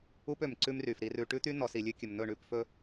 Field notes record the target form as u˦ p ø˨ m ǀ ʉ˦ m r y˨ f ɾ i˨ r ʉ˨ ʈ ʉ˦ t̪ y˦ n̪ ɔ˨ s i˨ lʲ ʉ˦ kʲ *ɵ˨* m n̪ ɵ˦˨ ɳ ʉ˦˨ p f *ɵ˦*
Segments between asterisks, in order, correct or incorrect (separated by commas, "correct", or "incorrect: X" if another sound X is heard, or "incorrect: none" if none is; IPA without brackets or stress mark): correct, correct